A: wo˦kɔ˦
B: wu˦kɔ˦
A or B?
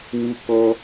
B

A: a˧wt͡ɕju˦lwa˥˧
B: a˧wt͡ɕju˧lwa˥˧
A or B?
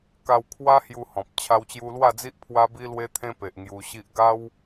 B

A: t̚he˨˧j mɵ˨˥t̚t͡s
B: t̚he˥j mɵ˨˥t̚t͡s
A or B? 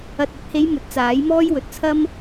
A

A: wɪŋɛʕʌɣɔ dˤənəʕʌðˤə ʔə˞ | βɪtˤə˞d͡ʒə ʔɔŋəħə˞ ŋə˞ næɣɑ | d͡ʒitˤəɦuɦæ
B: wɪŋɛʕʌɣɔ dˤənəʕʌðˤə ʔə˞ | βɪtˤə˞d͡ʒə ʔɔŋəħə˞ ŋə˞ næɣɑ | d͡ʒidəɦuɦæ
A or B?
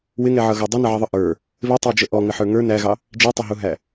A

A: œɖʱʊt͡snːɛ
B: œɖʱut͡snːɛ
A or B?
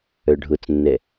A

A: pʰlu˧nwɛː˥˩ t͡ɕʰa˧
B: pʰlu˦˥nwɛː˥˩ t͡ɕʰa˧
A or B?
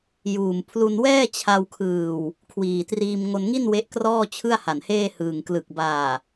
A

